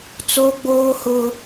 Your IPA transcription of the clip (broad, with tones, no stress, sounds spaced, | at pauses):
t͡s o˦ ɡ͡b oː˦ h ʊ˦